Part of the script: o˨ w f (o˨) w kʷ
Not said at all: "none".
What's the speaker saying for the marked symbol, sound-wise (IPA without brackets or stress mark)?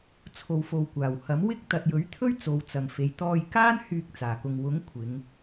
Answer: o˨